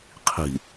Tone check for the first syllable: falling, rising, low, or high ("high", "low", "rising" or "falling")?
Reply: low